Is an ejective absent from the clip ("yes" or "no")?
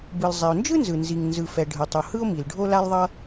yes